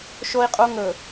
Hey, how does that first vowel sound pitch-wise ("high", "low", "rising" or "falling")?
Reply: high